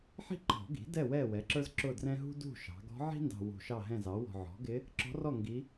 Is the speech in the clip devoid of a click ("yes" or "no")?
no